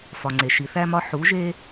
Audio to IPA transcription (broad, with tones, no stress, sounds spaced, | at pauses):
f ɒ˩ ŋ͡ǀ e˩ ʃ i˩ θ æ˧ m ɒ˧ ħ u˩˧ ʒ e˧